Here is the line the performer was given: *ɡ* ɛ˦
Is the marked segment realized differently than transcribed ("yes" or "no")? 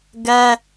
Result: no